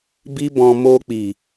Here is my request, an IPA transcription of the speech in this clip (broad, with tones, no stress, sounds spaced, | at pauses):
b i˦ b ɔ̃˧ m o˧ k͡p i˨